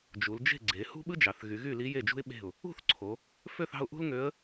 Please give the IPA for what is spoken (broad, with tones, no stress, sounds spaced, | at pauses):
d͡ʒ u˩˧ l d͡ʒ e̤˥˨ ɡ͡ǀ e˩˧ h ṳ˥ ɓ ɯ˥ d͡ʒ ɑ˩˧ θ ɣ y˩˧ ɣ y˥˨ l i˧˥ j e˥˨ d͡ʒ ṳ˥ ɪ̯ ɓ e̤˥˨ ʊ̯ | ṳ˥˨ θ ǀʰ o˩˧ | f ø˥˨ θ ɑ̤˥˨ ʊ̯ ʔ ṳ˥ l ŋ ø˧˥ ə̯